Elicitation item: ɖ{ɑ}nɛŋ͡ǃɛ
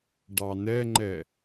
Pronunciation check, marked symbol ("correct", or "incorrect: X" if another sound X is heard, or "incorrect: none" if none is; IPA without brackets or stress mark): correct